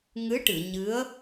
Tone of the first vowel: rising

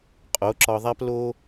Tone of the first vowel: rising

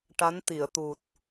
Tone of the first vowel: rising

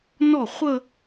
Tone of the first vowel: falling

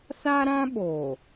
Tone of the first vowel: high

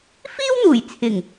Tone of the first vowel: high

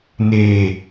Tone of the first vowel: low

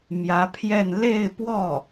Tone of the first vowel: rising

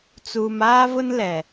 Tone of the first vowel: low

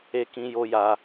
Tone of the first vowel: high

